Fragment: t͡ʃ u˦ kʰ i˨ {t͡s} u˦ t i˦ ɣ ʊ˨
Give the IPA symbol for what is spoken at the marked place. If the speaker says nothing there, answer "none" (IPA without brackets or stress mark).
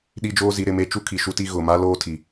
ʃ